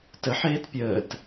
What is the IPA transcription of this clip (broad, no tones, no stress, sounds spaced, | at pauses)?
t ə ħ eː t pʲ əː t